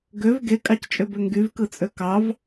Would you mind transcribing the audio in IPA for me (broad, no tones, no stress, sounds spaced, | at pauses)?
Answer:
ɡ ø v ɡ e kʼ ɑ c t͡ʃʼ ø b ø ŋ ɡ y v k ɯ t͡sʼ ø k ɑ v